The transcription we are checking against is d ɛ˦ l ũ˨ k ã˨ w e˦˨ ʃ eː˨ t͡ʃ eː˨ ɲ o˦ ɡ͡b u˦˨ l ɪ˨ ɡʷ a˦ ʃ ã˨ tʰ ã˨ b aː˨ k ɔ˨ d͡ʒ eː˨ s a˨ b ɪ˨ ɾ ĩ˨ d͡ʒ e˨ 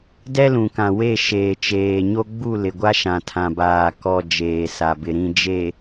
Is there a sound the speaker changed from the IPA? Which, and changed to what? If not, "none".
none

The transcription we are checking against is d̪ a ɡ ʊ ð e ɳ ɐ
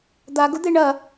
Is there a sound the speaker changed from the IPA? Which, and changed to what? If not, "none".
ð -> d̪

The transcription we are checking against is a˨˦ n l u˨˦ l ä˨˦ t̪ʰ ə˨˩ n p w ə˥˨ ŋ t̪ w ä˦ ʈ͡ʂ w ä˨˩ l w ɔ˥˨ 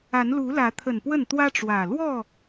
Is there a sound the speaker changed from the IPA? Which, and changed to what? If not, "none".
ŋ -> n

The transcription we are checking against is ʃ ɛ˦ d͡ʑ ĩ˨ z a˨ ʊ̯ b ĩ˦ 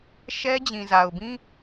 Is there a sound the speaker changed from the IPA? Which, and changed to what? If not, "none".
none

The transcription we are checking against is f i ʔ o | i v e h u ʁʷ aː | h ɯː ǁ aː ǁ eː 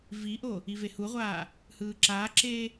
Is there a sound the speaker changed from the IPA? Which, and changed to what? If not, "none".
f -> v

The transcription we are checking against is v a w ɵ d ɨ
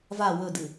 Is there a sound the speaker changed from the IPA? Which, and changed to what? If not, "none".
none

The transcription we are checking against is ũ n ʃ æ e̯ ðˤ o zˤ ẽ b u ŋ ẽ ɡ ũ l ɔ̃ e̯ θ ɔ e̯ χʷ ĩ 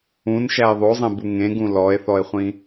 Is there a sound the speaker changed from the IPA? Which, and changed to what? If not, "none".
ɔ̃ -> ɔ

